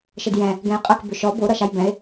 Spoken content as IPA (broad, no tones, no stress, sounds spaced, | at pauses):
ʃ ə d j ɛ̃ | ɡ ɛ̃ j qʼ ə k b ʏ ʃ ɔ b o ɾ ʌ ʃ a j b ɛ̃ e̯